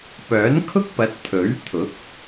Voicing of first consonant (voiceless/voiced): voiceless